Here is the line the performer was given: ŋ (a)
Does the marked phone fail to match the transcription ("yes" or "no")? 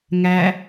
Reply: yes